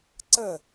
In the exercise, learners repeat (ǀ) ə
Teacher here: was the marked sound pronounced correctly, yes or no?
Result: yes